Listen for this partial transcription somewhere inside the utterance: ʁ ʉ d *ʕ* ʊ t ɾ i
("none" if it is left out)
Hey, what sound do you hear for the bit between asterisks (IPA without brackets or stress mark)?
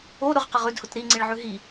h